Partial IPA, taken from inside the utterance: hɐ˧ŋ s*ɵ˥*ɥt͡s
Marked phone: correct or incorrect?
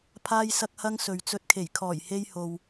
incorrect